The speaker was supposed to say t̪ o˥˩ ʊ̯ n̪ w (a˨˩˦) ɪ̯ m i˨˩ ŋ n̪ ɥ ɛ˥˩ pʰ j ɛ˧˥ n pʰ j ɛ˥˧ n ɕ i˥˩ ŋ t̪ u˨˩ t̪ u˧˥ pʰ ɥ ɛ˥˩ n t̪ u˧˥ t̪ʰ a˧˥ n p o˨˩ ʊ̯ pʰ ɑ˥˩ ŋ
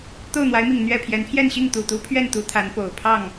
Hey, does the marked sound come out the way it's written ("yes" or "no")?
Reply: no